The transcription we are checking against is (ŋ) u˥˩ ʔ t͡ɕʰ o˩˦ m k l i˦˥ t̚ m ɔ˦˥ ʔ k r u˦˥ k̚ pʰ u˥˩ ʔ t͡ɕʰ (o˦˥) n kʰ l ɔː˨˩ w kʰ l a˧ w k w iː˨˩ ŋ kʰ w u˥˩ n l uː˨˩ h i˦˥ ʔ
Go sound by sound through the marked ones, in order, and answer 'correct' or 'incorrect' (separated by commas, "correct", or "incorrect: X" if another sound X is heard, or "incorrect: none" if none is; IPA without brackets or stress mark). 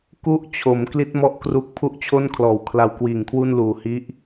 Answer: incorrect: k, incorrect: o˥˩